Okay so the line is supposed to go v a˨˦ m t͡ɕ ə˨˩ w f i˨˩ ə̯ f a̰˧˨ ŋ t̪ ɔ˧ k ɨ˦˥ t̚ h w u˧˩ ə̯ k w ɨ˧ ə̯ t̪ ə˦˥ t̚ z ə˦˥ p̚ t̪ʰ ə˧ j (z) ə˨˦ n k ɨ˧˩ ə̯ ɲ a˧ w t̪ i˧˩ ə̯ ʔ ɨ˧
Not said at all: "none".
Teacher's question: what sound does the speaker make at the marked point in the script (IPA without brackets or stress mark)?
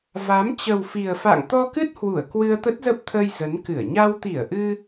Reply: z